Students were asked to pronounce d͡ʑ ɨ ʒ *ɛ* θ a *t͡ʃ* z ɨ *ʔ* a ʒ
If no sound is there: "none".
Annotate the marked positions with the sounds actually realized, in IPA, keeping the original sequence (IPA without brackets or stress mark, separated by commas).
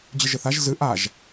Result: ɘ, ʒ, ʔ